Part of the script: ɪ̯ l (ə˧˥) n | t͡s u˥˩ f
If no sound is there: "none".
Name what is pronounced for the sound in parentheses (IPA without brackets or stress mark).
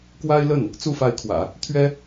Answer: ə˥˩